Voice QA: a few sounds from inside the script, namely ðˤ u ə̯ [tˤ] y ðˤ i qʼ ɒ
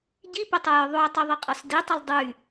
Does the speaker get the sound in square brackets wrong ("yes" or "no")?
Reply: no